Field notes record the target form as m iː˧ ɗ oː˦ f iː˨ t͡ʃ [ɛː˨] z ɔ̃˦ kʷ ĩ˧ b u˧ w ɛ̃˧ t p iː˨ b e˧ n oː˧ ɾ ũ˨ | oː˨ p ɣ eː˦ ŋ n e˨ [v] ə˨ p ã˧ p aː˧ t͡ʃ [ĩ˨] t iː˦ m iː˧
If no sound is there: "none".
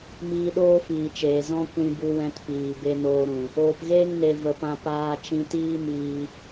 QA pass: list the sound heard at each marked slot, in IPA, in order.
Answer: eː˨, v, ĩ˧

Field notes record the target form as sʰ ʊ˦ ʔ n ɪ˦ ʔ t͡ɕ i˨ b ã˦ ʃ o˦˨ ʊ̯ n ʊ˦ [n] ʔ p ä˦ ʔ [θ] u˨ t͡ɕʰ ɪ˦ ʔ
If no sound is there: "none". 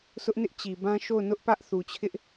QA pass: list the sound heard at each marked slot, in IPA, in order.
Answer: none, θ

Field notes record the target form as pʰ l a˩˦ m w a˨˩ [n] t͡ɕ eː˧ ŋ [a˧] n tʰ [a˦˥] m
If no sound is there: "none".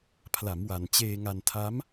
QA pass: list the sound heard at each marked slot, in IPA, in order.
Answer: n, a˧, a˦˥

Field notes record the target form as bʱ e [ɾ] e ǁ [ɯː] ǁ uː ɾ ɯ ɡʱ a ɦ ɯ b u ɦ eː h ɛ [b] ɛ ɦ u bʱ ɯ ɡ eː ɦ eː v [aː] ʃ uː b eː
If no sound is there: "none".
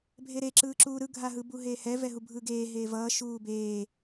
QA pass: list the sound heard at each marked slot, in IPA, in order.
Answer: ɾ, ɯː, v, ʌː

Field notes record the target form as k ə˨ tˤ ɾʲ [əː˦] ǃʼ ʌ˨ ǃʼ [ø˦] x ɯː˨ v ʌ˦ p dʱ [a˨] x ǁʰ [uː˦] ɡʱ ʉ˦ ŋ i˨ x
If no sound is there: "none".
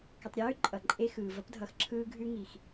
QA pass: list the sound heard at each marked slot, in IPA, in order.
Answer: ʉː˦, e˦, ʌ˨, ɯː˦

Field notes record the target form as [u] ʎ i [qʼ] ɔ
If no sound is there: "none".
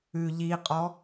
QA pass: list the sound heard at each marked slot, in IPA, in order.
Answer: ʉ, qʼ

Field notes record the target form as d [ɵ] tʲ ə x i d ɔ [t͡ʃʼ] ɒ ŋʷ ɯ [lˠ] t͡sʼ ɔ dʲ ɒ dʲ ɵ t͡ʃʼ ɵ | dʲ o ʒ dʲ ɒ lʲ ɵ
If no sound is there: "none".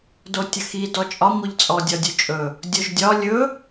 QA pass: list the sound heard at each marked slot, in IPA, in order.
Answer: o, t͡ʃʼ, ʎ

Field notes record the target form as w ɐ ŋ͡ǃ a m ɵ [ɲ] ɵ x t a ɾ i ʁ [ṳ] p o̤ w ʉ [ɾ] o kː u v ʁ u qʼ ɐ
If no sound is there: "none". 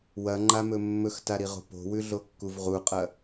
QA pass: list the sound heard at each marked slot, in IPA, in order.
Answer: mː, o̤, ɮ

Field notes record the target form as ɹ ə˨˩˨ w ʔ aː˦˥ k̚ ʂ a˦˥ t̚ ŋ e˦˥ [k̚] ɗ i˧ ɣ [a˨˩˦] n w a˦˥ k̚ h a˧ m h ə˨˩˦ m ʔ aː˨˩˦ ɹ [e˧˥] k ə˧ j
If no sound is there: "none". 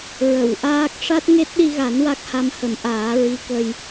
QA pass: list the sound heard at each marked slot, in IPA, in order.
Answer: t̚, a˨˩˦, i˧˥

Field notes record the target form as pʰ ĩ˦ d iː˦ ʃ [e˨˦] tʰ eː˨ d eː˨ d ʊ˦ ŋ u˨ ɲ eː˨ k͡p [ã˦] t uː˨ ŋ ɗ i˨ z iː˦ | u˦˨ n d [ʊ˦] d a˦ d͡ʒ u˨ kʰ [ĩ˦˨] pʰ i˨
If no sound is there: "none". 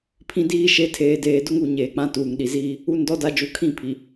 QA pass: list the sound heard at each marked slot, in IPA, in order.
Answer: e˨˦, ã˦, ɔ˦, ĩ˦˨

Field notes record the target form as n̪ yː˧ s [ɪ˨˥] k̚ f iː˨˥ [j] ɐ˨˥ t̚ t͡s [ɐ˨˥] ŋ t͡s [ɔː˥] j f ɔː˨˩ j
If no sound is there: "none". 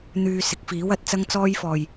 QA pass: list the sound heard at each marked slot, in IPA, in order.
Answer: ɪ˨˥, w, ɐ˥, ɔː˥

